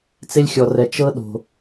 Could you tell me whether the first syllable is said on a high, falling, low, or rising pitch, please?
high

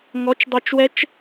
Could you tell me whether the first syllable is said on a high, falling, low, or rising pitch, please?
rising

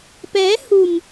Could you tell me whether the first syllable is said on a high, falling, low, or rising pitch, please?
rising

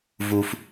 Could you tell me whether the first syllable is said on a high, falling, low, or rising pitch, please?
low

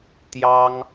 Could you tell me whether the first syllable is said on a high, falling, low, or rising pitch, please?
high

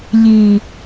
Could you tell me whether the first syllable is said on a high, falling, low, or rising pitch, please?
low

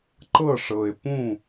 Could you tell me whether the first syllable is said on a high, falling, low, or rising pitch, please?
falling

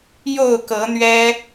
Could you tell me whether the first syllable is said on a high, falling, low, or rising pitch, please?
falling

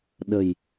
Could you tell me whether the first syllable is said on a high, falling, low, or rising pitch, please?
low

